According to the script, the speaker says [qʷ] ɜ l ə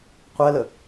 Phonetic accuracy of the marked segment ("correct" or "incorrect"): correct